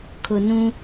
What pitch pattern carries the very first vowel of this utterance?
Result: low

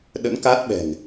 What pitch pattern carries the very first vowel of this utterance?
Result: rising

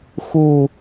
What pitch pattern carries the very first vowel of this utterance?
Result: low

